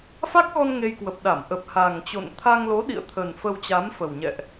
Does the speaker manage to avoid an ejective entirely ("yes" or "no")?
yes